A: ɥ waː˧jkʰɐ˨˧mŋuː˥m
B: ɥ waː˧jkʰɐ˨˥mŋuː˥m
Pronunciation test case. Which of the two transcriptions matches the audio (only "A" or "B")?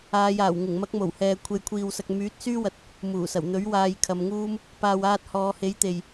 A